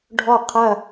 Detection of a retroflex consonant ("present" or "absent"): present